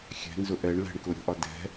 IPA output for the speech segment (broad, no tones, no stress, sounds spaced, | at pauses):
xʲ ɛ̤ n z ʊ ʔ ɛ ɳ l ɛ̤ ɳ k ʊ ɾʲ ɔ̤ ʔ ɒ d ɛ̤